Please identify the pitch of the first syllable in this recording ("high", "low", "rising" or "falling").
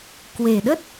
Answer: low